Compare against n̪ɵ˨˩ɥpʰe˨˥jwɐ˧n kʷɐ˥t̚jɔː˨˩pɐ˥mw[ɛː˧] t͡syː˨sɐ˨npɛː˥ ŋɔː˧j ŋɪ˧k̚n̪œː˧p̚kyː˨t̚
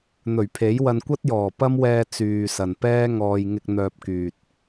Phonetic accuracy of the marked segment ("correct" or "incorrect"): correct